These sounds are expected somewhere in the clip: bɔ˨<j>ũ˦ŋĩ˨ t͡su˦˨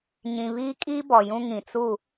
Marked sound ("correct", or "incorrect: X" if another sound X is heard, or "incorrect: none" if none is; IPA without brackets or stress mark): correct